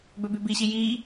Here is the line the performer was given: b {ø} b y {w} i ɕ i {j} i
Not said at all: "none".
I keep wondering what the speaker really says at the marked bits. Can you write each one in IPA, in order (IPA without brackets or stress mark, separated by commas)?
ø, b, j